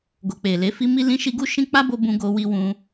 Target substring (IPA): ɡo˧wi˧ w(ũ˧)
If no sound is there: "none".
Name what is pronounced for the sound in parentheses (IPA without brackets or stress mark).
ũ˧